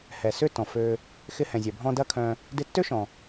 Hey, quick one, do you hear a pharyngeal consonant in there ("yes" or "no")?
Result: no